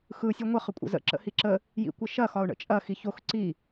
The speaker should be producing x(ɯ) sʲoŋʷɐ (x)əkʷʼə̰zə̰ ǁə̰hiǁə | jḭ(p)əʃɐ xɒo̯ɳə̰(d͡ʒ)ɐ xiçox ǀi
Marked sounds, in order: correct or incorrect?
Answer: correct, incorrect: χ, incorrect: kʷ, incorrect: t͡ʃʼ

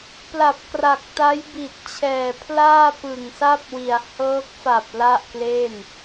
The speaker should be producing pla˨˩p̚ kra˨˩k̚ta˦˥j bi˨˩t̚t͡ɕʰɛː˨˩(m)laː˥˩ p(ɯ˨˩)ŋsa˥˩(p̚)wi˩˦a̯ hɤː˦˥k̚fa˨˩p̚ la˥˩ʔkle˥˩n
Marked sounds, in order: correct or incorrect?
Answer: incorrect: pʰ, correct, correct

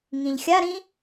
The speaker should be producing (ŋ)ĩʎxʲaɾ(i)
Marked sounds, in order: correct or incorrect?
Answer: correct, incorrect: ĩ

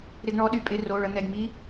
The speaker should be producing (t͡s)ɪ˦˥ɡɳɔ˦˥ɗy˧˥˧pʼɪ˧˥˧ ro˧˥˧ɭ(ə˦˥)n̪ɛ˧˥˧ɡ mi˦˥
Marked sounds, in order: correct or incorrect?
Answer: incorrect: ɾ, correct

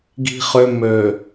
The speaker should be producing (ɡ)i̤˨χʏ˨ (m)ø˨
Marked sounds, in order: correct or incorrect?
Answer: correct, correct

